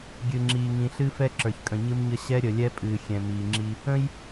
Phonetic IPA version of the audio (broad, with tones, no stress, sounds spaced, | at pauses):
ɡʲ ɨ˨ ŋ͡ǁ iː˨ ŋ ĩ˨ ɬ ɨ˦ f ɛ˦ ǁ ə˞˨ ç kʼ ə̃˨ ɲ ɨ˦ m ɲ ə˦ ɕ ɛ˦ ɾʲ ə˨ lʲ ɛ˦ pʼ ɨː˨ xʲ ɛ̃˨ m iː˨ ŋ͡ǁ i˦ | ə̃˦ j